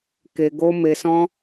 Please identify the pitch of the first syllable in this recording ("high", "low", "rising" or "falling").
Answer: low